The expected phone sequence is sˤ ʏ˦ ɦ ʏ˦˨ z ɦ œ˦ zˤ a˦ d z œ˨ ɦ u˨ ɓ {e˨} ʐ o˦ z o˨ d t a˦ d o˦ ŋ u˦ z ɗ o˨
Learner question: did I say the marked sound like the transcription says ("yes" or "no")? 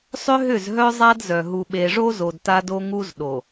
yes